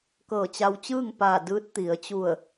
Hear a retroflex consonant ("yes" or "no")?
no